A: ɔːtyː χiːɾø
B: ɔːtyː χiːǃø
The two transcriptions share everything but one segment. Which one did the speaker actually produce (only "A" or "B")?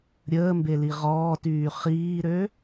A